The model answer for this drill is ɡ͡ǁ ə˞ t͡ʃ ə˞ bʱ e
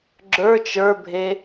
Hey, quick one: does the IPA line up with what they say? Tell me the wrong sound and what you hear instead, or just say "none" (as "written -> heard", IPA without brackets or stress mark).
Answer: none